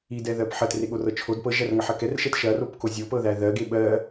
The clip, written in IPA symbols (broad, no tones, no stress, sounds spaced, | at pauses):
i d ɛ ð ɜ p ħ ɜ t r e ɠ o r ɤ t͡ʃʰ o d p ɤ ʒ æ r ŋ ɐ ħ ɐ k ɛ r ʃ ɛ t ʃ ɐ r o p k o zʲ o p ɤ ð æ ð ɜ ɡ e ɓ ɜ